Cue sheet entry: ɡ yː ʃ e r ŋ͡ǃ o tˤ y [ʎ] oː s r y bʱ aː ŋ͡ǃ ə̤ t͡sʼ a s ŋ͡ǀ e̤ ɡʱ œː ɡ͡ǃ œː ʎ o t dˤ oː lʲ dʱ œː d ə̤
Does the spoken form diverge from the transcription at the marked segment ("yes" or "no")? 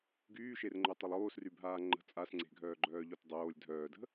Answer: yes